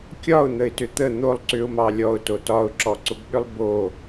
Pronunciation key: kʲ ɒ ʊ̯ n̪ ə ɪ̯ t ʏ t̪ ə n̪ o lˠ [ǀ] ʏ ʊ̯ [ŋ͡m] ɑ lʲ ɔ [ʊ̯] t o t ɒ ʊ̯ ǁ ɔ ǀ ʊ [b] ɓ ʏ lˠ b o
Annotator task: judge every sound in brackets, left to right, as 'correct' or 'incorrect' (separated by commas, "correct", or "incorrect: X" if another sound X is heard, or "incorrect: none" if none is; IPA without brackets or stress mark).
correct, incorrect: m, correct, correct